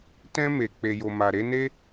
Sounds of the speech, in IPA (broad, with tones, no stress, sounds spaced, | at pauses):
t ɛ̃˧ m e˨ k͡p e˨ j o˨ m a˨ ɾ e˨˦ n e˦